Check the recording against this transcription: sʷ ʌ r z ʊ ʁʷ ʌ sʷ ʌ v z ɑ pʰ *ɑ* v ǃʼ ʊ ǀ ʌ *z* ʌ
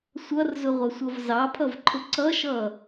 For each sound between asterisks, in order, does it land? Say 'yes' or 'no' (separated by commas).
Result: no, no